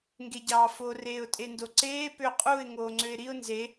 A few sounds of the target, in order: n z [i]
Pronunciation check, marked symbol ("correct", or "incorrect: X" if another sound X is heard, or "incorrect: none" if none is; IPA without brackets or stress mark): incorrect: e